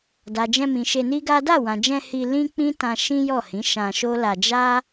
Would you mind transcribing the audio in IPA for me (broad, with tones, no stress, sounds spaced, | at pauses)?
d a˨ d͡ʒ ɛ̃˧ m ĩ˨ ʃ e˧ n i˦ ɡ a˦ d a˦˨ w ã˨ d͡ʒ ɛ̃˧ h i˧ l ĩ˦ k͡p ĩ˦ t ã˧ ʃ ĩ˦ j ɔ˦˨ h ĩ˨˦ ʃ ã˧ ʃ o˦ l a˧ d͡ʒ a˦